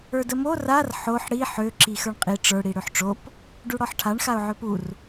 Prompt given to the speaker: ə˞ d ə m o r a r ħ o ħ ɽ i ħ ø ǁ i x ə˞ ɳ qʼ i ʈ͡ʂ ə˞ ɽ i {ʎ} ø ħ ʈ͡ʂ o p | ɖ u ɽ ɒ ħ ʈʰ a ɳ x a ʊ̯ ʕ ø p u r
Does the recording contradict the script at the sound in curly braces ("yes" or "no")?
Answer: yes